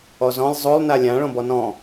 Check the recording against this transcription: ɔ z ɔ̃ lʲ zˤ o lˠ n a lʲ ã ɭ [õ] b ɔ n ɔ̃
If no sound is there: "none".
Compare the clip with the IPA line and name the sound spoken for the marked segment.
õ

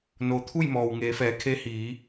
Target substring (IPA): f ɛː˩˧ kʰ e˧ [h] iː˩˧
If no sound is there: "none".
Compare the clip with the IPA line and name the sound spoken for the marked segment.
h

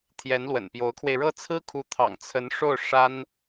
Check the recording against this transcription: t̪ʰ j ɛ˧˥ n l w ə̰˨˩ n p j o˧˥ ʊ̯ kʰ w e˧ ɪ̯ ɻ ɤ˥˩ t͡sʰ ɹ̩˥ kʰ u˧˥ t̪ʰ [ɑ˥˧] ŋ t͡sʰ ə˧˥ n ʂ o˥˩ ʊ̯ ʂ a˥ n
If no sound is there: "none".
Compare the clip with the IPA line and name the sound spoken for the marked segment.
ɑ̰˨˩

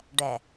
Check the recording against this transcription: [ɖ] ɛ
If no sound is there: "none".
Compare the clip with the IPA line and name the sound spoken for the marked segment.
ɖ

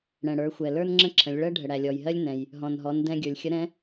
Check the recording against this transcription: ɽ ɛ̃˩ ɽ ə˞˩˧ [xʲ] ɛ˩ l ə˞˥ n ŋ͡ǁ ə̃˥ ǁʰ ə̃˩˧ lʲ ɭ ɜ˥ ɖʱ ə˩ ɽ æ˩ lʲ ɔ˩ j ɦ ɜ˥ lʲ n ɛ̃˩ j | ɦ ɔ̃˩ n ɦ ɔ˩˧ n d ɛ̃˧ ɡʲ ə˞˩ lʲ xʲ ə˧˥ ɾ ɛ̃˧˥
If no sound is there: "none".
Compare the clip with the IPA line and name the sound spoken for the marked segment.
xʷ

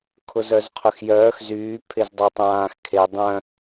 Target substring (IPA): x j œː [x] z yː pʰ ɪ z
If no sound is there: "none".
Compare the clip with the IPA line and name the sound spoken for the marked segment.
x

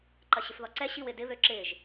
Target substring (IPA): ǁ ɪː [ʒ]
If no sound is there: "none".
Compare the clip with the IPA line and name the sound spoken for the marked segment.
ʒ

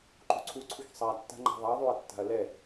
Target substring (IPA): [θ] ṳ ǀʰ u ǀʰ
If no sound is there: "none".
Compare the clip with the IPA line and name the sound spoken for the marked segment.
ǃ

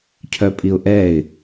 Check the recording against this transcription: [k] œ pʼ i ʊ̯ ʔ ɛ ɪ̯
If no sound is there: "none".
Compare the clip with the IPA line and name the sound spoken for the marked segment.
cʰ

